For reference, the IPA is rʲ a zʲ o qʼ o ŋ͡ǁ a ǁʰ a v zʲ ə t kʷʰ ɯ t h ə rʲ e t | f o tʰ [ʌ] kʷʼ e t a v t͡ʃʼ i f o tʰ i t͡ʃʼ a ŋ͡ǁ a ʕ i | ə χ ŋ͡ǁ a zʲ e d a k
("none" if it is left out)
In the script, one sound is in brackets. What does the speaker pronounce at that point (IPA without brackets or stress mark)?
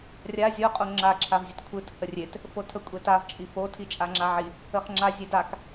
ə